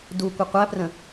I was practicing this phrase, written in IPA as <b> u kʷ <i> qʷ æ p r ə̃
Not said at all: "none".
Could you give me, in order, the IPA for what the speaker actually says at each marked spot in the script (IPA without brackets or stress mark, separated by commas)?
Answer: d, ɪ